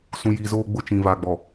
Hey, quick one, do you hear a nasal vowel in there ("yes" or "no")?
yes